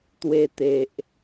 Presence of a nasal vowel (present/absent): absent